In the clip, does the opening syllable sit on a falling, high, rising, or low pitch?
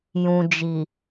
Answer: low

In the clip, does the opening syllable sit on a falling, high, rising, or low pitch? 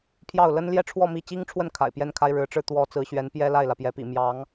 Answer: falling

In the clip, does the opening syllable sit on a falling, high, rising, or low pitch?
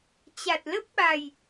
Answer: low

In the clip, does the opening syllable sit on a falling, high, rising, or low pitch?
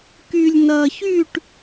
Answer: low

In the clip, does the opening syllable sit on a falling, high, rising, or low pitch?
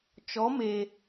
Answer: rising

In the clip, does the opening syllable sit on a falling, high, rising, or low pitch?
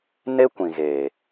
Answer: high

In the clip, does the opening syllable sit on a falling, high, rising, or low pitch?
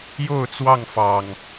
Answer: falling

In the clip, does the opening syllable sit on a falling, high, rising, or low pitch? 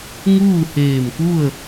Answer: falling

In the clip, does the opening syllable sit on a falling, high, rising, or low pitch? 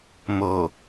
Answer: low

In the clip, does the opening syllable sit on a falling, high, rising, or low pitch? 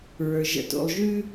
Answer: low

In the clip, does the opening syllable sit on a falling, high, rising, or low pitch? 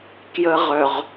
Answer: high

